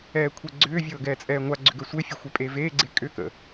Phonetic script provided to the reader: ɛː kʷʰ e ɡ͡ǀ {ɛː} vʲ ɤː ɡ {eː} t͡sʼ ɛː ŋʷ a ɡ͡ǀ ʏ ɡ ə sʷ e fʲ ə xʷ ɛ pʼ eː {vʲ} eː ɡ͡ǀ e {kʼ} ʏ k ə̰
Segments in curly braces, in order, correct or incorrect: incorrect: ʏː, incorrect: ɛː, incorrect: v, correct

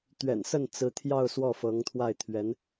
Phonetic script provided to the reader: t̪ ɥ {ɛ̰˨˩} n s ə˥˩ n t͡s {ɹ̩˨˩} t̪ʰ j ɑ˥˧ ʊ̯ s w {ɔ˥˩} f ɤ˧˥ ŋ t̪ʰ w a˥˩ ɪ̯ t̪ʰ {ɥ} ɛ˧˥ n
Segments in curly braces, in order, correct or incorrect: correct, incorrect: ɹ̩˧˥, correct, correct

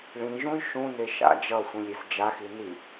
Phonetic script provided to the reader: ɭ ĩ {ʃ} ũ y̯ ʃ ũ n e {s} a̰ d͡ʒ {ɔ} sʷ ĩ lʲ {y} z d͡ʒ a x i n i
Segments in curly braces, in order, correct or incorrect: incorrect: ʒ, incorrect: ʃ, incorrect: ʌ, incorrect: i

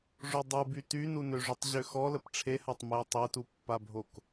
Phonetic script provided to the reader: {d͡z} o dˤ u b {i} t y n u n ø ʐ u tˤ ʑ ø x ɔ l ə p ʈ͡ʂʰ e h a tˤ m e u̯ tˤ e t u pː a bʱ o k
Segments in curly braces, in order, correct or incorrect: incorrect: ʐ, incorrect: y

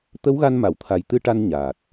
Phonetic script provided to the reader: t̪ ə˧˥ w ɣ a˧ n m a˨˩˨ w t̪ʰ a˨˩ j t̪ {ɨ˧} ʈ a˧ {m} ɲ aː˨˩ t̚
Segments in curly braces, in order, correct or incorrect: correct, incorrect: n

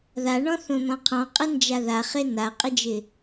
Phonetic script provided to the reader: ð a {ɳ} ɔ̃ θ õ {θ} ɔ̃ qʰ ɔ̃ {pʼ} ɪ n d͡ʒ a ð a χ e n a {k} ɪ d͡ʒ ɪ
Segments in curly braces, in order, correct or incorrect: correct, incorrect: n̪, incorrect: qʼ, incorrect: qʼ

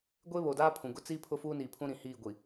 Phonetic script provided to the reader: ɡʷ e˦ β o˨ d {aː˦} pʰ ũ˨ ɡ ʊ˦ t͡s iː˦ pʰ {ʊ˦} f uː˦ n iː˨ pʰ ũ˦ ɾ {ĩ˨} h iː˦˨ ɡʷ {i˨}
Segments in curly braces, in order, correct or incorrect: correct, correct, correct, correct

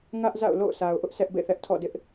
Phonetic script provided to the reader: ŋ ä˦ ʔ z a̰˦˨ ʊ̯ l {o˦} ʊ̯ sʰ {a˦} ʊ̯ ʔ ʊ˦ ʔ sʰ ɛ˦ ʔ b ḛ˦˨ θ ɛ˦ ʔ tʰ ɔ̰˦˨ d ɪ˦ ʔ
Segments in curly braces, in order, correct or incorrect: incorrect: o̰˦˨, incorrect: a˨

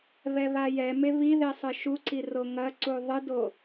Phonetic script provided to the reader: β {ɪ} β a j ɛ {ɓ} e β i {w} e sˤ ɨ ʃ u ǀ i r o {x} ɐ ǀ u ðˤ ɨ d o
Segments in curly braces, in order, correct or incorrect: incorrect: ɛ, incorrect: m, incorrect: ð, incorrect: ŋ

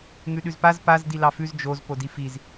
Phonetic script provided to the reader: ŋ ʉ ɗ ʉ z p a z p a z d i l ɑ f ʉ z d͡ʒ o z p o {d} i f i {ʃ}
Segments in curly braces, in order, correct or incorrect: correct, incorrect: z

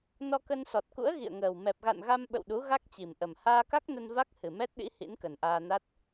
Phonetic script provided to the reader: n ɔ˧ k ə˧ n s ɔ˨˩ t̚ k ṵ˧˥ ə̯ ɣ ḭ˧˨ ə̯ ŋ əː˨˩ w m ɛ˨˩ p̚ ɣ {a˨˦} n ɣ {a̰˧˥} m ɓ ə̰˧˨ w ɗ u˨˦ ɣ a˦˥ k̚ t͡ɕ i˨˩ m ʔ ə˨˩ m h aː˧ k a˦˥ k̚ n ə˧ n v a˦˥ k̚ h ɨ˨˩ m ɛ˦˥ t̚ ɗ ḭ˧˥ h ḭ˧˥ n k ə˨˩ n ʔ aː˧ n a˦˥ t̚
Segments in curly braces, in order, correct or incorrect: incorrect: a̰˧˨, incorrect: a˧

